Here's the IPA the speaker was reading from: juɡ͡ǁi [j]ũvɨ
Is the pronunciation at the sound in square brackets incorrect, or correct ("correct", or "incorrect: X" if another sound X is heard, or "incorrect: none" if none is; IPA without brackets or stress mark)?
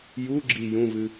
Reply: correct